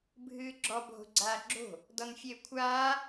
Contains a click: yes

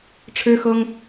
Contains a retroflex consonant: yes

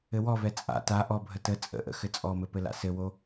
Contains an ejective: yes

